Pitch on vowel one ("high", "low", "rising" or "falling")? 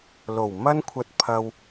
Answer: low